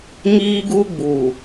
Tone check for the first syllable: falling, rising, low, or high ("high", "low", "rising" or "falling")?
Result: high